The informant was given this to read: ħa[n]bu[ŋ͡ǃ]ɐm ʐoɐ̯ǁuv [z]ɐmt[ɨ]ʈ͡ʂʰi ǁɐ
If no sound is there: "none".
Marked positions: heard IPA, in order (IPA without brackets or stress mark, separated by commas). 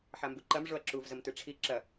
m, ǃ, z, ɨ